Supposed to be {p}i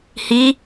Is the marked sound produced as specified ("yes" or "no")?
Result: no